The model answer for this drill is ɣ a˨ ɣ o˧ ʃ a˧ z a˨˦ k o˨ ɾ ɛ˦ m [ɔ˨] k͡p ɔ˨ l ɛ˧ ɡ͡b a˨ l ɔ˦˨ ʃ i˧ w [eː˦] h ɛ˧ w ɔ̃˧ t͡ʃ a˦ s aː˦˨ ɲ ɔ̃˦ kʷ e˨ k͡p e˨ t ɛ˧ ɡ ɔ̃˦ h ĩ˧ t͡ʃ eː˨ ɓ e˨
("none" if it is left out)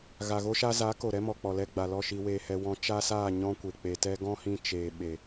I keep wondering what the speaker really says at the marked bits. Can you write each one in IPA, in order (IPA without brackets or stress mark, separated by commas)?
ɔ˨, eː˧